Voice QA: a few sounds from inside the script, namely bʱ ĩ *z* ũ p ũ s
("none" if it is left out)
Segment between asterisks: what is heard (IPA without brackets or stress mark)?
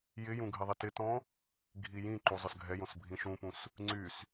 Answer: ʃ